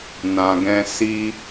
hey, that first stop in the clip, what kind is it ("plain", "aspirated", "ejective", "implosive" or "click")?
plain